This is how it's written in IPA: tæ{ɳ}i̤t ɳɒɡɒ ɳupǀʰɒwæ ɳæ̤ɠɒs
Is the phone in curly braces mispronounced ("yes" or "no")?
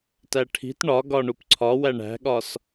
yes